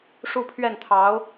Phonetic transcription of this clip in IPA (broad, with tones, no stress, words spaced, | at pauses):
ʂu˥˧pʰɥɛ˥˩nt̪ʰɑ˧˥ʊ̯